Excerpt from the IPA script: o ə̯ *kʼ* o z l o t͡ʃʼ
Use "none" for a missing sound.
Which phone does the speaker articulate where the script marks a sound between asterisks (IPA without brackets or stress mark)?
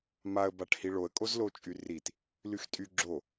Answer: kʼ